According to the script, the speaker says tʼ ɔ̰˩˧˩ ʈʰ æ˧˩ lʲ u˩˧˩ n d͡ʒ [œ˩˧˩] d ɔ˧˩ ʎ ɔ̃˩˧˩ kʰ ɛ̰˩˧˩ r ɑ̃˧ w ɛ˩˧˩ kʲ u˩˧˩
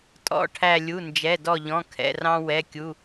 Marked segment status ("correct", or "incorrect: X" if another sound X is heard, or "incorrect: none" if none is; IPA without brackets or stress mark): incorrect: ɛ˩˧˩